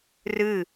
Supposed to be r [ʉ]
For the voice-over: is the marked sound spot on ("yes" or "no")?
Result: no